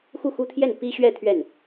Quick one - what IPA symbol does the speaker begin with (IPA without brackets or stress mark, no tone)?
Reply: x